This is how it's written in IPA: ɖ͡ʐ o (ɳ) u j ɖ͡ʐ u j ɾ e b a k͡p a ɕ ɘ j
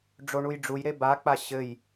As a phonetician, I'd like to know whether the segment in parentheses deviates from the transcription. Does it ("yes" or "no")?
no